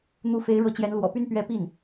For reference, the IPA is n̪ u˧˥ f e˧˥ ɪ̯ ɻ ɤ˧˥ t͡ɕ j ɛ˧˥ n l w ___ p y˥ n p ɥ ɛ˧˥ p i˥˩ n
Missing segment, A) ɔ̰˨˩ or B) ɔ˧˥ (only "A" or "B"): A